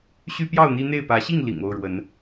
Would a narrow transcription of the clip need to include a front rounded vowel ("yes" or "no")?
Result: yes